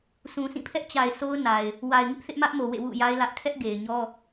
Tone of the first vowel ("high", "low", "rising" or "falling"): low